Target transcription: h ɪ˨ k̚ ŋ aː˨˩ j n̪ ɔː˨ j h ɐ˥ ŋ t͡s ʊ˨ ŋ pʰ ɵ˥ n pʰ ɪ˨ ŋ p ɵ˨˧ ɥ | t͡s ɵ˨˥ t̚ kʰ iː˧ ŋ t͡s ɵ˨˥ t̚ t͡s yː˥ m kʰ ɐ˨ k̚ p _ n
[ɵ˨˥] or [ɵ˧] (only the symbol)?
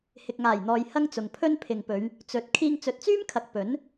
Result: ɵ˨˥